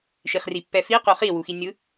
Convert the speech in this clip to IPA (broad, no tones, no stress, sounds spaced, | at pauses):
ʃ i χ r i pː ɛ f i q o χ i w u x i nʲ ɯ